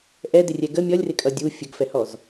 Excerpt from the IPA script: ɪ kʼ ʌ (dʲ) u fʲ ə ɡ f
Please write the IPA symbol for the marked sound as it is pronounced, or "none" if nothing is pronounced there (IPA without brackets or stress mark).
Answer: dʲ